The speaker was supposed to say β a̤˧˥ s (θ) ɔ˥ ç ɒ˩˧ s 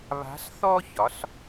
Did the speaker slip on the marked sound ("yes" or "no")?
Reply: no